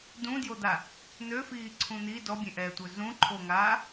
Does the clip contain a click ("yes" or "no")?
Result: yes